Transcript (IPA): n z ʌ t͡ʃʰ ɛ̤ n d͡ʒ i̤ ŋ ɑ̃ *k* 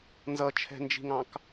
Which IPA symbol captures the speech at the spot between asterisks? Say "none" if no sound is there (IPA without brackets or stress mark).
k